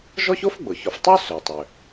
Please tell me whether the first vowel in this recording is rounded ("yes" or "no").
yes